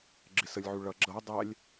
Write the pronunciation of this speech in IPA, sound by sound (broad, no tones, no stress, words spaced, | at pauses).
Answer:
ɡ͡ǁɪsəlʲʕu ɭʌ ɡ͡ǁʌ dˤælʲ